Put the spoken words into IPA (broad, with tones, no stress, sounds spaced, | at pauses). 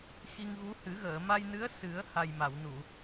x i˧ ŋ ɣ u˧˥ h ɨ˨˩˦ ɣ əː˨˩˨ m a˧ j n ɨ˧˥ ə̯ s ɨ˨˩˦ ə̯ h a˨˩ j m a˨˩˨ w n u˨˩˨